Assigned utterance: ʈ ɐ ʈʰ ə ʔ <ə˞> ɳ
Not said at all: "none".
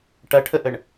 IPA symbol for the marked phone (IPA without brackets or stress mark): ə